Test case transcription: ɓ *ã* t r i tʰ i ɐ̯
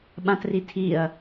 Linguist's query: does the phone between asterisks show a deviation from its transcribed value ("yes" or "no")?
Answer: no